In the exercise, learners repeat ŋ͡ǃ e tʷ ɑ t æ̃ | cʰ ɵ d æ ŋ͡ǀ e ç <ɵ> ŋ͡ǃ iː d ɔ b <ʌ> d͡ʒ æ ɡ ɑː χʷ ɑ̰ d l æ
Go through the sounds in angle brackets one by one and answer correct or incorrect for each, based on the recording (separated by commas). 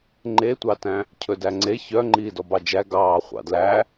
incorrect, incorrect